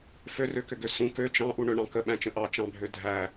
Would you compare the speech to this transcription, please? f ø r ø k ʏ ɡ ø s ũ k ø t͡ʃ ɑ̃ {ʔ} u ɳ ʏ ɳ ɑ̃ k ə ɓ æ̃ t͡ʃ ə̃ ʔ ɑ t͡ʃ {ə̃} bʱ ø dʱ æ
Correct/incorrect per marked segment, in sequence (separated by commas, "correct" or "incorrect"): correct, incorrect